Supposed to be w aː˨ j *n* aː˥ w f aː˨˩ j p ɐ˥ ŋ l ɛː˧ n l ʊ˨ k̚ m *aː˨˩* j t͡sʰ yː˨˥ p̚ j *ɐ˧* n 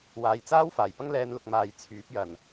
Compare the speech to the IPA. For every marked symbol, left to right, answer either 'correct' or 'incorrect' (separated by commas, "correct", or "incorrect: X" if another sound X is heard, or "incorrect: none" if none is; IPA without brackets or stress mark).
incorrect: t͡s, correct, incorrect: ɐ˨˩